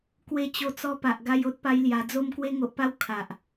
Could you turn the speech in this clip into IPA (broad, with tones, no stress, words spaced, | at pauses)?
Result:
kwe˧ t͡ɕo˧t͡sɔ˧pa˨ʔ ɡa˧jo˦t̚pa˧j lja˨˩d͡zo˧m kwe˧ŋo˨ʔpa˧w kʰa˨ʔ